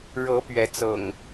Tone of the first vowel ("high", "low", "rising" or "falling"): rising